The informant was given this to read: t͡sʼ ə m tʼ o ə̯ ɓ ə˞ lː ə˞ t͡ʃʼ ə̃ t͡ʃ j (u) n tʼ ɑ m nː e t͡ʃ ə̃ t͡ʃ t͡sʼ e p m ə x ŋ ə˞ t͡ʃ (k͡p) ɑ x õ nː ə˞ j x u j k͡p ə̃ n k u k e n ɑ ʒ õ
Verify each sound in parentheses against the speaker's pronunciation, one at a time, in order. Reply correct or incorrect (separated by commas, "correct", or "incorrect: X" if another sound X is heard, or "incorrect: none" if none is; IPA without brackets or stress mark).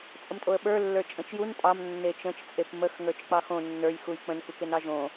correct, correct